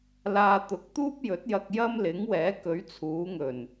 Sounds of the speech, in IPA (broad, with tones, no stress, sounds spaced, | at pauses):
l aː˧ t̪ ʊ˨˥ k̚ t̪ uː˥ p̚ j ɵ˨˥ t̚ j ɐ˧ k̚ j ɐ˥ m l ɪ˨˥ ŋ w ɛː˨˥ k ɵ˨˧ ɥ t͡sʰ uː˨˧ ŋ ɵ˨˩ n